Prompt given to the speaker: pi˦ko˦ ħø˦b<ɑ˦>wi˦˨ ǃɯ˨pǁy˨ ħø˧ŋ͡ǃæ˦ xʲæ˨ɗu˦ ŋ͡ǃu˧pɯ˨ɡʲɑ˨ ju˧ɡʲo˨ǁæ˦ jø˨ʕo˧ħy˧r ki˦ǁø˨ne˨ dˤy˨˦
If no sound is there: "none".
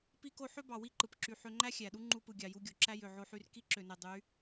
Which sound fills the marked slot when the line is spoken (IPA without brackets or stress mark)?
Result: ɑ˨